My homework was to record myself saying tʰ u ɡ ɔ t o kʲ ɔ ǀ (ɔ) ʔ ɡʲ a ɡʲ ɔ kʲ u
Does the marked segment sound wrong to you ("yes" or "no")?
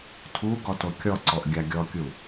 no